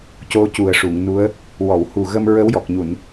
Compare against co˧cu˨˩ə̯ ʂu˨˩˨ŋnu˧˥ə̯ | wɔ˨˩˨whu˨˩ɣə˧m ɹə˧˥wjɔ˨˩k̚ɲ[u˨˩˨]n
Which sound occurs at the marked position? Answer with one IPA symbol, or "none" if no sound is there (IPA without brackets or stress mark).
u˨˩˨